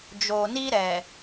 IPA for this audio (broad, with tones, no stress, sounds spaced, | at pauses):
d͡ʒ oː˨ n i˦ ɾ ɛ˨